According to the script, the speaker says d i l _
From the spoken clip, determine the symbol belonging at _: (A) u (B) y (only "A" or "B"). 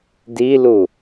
A